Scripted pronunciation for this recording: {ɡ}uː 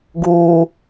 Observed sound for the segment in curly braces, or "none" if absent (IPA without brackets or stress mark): ɡ